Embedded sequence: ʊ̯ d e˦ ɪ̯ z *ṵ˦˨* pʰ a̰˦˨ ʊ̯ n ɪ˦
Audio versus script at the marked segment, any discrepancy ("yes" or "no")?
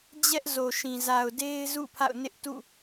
no